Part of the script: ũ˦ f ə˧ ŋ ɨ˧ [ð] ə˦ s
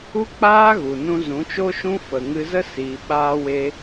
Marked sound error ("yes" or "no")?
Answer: yes